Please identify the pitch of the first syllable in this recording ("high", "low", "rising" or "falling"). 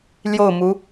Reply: falling